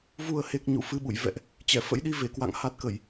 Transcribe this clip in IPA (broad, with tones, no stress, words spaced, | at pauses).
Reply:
vu˨˩ə̯he˨˩k̚ ɲṵ˧˨fɨ˧ɓṵ˧˨j vɛ̰˧˨ʔ | t͡ɕɛ˧˩fə̰˧˥jɗi˧ve˧˩ kwa̰˧˨ŋha˦˥t̚kə˧˩˨j